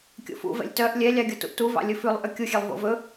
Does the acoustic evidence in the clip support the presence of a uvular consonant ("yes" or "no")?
no